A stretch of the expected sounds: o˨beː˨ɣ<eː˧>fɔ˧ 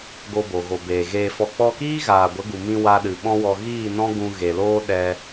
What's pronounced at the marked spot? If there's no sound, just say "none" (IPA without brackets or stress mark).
eː˧